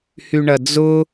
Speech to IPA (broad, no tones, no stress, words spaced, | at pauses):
hyɳɐd͡zʊ